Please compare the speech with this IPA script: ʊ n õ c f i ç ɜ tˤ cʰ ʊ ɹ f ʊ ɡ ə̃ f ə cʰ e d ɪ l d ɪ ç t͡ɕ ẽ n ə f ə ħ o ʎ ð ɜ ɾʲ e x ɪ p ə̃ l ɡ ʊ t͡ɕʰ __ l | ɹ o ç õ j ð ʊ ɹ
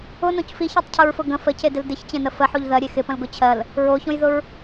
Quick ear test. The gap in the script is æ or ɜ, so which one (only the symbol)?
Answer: ɜ